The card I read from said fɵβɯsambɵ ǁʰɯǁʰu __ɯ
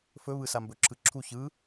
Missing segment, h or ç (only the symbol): ç